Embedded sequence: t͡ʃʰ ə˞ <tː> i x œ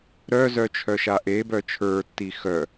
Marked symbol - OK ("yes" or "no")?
yes